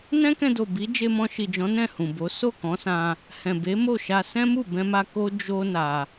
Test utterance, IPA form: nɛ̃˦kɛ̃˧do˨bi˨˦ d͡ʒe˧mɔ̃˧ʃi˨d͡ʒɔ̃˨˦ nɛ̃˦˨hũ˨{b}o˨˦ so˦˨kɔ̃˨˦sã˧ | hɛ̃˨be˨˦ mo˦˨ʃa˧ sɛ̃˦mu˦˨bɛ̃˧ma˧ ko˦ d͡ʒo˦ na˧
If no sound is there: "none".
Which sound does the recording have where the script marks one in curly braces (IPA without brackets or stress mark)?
b